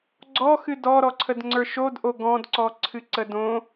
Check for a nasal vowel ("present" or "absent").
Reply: present